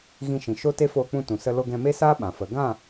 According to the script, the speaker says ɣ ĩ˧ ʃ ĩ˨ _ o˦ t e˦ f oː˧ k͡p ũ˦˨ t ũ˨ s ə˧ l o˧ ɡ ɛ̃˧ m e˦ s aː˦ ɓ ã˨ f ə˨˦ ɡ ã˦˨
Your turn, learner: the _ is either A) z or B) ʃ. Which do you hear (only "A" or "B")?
B